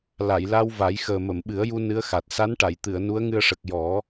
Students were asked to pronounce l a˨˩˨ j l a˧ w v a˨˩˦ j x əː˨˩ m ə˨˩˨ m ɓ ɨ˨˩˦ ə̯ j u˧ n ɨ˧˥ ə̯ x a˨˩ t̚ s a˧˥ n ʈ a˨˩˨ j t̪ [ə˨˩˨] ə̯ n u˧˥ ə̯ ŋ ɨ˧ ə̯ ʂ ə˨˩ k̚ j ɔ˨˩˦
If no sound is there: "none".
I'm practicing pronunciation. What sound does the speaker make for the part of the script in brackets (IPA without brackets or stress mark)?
ɨ˨˩˨